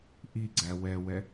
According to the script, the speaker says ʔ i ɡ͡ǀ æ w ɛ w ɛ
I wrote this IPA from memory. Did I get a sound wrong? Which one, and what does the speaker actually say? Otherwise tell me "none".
none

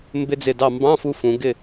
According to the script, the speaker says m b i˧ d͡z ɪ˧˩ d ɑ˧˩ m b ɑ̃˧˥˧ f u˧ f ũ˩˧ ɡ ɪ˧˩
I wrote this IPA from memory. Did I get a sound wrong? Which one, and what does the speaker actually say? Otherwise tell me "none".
i˧ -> ɪ˧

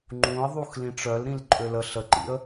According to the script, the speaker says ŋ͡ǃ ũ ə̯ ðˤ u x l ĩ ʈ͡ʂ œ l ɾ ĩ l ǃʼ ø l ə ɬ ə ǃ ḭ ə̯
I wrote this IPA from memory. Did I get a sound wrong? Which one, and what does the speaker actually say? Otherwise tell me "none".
none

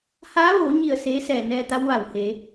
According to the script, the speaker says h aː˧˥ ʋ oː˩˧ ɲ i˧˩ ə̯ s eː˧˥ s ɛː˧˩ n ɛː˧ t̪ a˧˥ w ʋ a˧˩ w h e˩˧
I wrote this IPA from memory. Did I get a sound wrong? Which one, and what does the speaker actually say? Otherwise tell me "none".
none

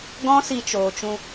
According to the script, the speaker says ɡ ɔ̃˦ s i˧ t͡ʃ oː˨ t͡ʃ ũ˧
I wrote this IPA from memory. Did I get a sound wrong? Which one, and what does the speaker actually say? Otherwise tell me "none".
none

